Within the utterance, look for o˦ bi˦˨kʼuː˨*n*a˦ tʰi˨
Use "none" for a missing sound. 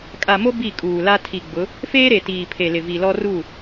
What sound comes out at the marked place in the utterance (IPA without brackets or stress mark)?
l